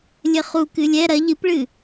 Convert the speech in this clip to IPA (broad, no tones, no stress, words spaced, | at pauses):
lʲɘχu kɨlʲɛ ɾɐ ʎɨpɭɨ